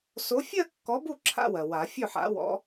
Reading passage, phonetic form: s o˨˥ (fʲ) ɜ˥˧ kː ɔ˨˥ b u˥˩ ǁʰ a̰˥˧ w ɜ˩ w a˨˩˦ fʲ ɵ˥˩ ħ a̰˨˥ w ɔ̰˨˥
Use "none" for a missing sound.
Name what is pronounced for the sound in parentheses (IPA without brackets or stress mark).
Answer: fʲ